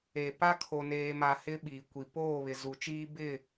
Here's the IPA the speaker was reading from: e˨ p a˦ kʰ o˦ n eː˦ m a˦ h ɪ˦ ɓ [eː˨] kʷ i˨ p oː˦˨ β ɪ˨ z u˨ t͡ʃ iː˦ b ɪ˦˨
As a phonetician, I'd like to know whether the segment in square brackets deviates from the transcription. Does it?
yes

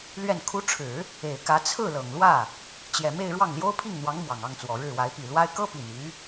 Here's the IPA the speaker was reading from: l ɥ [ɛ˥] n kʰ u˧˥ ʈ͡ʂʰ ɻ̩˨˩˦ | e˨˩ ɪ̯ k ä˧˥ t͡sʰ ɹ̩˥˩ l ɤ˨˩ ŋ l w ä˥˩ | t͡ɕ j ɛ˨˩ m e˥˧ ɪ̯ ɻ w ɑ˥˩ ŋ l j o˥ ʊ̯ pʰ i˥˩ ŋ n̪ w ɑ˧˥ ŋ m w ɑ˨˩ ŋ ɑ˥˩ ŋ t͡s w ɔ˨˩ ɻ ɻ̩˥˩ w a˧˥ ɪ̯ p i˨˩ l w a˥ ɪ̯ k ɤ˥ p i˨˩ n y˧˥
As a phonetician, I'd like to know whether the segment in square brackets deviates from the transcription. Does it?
yes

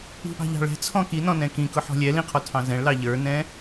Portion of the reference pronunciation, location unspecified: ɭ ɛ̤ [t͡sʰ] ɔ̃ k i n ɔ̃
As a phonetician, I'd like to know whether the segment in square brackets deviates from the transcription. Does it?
no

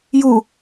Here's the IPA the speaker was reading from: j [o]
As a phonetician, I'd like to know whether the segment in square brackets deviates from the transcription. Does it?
yes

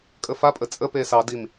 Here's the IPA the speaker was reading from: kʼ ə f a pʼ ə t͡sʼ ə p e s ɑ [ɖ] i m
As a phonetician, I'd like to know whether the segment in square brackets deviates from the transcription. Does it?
yes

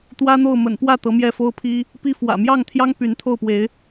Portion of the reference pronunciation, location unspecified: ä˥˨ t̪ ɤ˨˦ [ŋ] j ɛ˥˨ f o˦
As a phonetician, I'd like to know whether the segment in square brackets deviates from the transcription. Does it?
yes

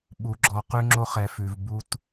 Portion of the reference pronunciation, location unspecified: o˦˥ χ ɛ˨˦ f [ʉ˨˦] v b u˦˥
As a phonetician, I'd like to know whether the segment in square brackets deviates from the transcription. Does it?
no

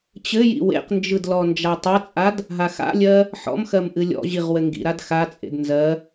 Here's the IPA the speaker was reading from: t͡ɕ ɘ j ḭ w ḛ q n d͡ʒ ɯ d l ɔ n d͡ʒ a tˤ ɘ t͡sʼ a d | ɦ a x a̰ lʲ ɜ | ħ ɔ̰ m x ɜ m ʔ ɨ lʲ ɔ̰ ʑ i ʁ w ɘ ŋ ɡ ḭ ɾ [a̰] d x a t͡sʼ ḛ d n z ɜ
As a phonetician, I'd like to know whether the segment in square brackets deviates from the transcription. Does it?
yes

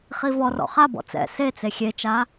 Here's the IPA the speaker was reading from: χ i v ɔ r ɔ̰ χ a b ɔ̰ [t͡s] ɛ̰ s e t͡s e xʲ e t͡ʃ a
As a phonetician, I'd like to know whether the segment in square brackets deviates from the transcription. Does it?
no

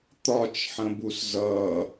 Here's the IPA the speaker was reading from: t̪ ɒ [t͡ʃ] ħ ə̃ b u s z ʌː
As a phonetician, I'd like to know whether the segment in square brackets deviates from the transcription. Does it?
no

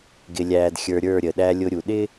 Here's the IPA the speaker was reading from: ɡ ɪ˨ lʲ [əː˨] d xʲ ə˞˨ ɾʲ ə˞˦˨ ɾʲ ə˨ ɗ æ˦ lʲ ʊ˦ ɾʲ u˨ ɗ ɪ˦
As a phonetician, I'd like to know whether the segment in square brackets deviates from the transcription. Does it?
yes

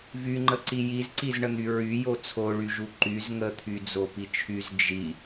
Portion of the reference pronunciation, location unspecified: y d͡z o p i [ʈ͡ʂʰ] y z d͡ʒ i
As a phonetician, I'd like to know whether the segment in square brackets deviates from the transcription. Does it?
yes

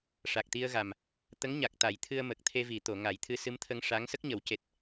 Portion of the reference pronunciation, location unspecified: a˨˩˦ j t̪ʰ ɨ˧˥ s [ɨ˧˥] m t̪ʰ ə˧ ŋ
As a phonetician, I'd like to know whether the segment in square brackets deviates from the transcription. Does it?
no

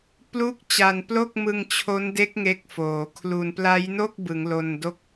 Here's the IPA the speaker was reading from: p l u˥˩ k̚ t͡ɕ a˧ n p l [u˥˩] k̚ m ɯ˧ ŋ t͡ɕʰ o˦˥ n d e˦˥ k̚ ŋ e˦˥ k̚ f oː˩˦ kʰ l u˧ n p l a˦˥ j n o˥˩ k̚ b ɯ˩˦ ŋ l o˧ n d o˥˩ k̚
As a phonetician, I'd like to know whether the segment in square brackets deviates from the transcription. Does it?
yes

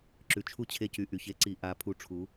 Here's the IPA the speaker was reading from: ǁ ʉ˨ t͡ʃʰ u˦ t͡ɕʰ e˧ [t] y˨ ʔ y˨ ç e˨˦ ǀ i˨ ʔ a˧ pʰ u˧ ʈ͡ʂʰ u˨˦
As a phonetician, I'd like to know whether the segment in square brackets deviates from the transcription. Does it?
yes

